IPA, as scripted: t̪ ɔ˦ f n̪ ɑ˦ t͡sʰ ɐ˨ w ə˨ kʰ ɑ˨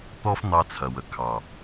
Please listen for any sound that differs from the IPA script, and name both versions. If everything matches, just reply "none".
none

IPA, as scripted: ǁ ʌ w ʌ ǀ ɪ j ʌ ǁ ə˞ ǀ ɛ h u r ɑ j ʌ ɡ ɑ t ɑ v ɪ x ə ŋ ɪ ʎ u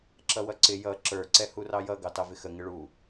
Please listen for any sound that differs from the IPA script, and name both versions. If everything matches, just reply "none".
ʎ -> ɭ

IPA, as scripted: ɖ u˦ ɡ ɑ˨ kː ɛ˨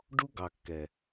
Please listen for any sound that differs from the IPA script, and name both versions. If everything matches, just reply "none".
none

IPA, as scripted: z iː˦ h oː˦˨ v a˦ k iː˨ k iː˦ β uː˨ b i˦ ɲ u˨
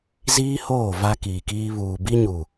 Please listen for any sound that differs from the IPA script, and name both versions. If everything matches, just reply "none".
none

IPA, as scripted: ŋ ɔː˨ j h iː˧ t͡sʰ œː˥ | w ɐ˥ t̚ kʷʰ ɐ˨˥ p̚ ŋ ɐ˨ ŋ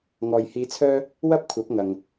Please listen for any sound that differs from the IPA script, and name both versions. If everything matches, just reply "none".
t̚ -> p̚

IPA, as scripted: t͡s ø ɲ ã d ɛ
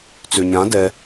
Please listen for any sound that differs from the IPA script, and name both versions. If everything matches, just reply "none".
none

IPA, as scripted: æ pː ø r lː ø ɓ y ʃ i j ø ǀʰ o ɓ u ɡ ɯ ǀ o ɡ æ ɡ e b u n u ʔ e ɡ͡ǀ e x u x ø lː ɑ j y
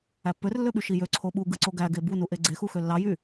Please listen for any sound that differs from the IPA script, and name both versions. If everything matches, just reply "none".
none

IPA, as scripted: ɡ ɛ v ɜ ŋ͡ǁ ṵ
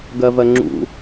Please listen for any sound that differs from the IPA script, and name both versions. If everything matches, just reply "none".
ɛ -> ɜ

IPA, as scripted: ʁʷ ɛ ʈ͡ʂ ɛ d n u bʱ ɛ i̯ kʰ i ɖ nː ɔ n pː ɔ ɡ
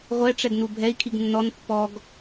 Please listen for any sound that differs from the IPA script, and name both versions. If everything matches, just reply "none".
ɖ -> ɡ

